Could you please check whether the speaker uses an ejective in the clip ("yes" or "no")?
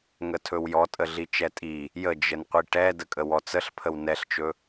yes